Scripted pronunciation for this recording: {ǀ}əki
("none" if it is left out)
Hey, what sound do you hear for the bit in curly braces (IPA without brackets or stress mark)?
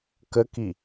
k